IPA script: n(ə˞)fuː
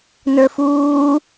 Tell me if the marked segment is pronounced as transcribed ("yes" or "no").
yes